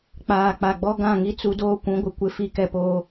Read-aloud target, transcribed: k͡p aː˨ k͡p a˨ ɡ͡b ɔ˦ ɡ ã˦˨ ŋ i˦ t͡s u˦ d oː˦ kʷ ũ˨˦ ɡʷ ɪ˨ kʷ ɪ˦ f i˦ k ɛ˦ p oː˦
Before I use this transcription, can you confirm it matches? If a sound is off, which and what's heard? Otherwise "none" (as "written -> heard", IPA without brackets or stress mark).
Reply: none